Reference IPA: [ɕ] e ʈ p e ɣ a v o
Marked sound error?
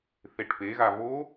yes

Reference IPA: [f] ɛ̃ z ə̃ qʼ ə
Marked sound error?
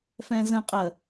no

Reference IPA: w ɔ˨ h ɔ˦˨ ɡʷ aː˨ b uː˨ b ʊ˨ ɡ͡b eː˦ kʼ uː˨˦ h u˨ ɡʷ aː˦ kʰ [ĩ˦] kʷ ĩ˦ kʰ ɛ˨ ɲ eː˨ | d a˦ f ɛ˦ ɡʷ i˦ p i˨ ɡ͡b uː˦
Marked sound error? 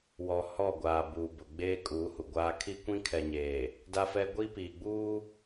yes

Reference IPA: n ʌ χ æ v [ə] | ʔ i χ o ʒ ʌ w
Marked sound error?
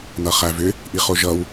yes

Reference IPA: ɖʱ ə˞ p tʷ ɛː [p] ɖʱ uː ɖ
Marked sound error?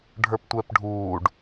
no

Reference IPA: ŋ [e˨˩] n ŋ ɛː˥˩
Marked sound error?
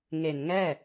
no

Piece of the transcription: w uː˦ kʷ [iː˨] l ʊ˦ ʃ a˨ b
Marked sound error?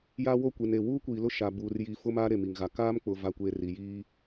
no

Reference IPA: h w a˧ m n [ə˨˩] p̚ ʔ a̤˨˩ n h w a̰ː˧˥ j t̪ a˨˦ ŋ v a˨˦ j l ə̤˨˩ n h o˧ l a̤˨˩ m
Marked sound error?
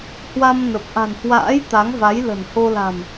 no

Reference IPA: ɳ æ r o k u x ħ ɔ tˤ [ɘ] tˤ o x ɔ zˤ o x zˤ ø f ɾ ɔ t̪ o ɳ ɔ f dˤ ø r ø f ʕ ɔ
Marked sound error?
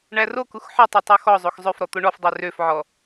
yes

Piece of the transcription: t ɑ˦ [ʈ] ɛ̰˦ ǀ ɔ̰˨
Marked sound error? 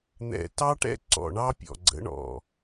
no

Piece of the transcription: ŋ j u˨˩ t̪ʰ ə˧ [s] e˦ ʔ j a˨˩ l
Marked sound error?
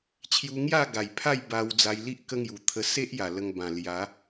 no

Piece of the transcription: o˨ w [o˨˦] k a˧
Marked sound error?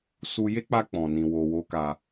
no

